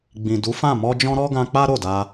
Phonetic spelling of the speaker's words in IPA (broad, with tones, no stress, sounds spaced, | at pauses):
ɡ͡b ĩ˨ d u˨˦ f ã˦˨ m ɔ˧ d͡ʒ ɔ̃˧ ɾ ɔ˦ ɡ ã˧ k͡p a˦ ɾ o˦˨ d a˧